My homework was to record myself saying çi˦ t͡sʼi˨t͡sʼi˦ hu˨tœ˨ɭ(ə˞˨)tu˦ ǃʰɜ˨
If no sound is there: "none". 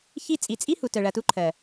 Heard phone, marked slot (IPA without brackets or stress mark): ɐ˨